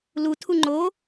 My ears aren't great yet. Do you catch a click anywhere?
yes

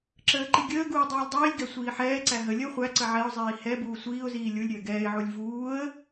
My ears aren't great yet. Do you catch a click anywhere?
yes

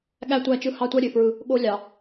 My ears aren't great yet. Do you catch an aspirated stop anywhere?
no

